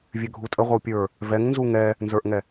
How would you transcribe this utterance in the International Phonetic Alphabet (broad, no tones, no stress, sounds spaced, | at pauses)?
vʲ ø ɡʱ u tʼ ə ʁʷ ə w pʲ ə˞ | v ɛ ŋ n z u ŋ ɛ | n z ə˞ ʔ ŋ ɛ